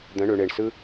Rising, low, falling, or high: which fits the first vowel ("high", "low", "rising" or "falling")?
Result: rising